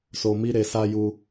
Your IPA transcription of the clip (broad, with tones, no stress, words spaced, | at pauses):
so˨mi˧ ɾe˨sa˧ju˧